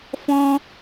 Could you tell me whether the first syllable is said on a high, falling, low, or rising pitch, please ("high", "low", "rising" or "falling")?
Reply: high